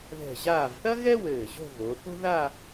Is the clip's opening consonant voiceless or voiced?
voiced